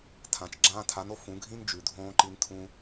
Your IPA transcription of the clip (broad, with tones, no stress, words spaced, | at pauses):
tʰã˨t͡ʃ ɡ͡ǁãː˧tʰa˨˦no˨ fũ˨˦ɡʱĩ˦n d͡ʒʉ˨dʱõː˦ ǃi˧ntʰũ˧